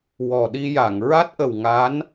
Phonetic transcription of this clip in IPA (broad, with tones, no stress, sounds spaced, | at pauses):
w ɔ˨˩ ɗ i˧ j a˨˩˨ ŋ ɹ a˦˥ t̚ ʔ ə˨˩ w ŋ a˧˥ n